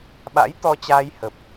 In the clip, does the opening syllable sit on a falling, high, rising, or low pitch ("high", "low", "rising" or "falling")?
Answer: rising